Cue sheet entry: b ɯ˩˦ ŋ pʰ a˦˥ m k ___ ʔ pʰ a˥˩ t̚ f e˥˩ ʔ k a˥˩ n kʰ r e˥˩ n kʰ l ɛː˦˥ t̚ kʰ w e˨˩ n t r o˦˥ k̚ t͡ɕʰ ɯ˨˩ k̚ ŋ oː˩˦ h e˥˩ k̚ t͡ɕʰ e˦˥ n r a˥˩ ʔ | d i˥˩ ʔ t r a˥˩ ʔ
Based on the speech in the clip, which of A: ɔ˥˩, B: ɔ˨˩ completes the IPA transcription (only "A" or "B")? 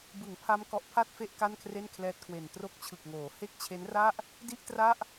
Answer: B